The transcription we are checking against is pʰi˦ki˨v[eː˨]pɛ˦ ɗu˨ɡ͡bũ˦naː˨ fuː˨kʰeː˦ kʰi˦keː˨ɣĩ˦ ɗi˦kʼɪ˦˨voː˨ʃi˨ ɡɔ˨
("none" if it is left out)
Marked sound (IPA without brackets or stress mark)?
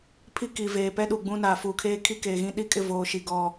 eː˨